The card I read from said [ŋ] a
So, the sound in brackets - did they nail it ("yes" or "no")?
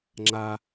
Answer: no